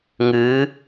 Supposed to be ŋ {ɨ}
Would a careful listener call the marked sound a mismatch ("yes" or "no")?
no